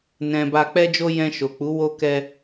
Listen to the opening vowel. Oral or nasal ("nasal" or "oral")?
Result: nasal